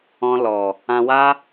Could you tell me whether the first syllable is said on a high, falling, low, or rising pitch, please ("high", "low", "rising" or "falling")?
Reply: high